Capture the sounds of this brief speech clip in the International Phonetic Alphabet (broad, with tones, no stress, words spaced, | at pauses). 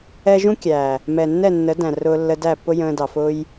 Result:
ɛ˦ ʒũ˦kʲæ˨ | mɛ˨nːɛ˦˨nːə˨˦dæ̃˨ rʊː˧lːə˧ dæ˦˨pːʊ˦jə̃ː˧dɑ˨ fʊ˦j